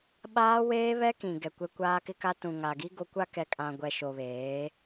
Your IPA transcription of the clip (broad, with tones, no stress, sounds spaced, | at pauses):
ɓ aː˦ w eː˦ β ɛ˦ k ĩ˨ ɡ ɛ˨ kʷ ɛ˦ kʷ aː˦ k ɪ˦ k a˦ t ũ˨ ŋ a˨ ɡ i˦ ɡ o˦ kʷ a˦ k ɛ˨ kʼ ã˨ ɡʷ ɛ˨ ʃ o˨ β eː˨˦